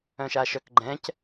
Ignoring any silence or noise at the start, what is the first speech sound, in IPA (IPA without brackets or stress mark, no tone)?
œ̃